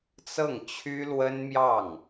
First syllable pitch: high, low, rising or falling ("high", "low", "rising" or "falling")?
falling